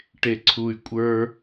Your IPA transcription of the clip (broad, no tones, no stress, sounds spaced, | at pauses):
ʈ e ǀʰ u y̯ kʷʼ ə˞